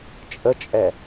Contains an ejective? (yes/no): yes